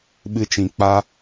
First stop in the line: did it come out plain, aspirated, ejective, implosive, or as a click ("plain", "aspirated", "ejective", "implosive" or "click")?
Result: implosive